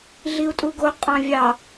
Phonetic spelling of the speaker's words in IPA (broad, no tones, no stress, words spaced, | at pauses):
ɮiu̯tʼuɡo qʼɑ̃vʲɑ